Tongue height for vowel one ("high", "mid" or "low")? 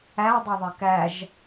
low